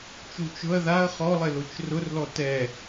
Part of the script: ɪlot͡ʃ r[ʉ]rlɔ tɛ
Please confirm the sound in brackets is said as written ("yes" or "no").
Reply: no